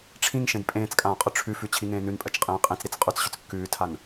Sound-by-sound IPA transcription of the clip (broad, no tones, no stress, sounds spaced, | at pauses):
ʈ͡ʂʰ ĩ ŋ ʃ ẽ d pʼ ẽː t͡s kʼ ãː qʼ ʏ ʈ͡ʂʰ ʉ f ʉ t͡ɕʰ i ŋ ẽː n ʉ n pʼ ɜ t͡ʃ qʼ ĩː qʼ ĩ t͡s ɾ i t͡s qʼ ʉ t͡s ɕ ʏ t͡s kː ʉː tʰ a n